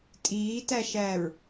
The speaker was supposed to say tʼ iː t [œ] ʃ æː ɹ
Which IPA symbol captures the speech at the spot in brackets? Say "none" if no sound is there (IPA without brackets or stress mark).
æ